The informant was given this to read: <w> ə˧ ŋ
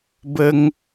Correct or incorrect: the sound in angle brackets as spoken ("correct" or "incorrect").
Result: incorrect